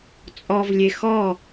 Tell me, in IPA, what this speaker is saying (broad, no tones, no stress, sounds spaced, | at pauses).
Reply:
t͡sʼ ɔ v lʲ e x ɔ